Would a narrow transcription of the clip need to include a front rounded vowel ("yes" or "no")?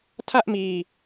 no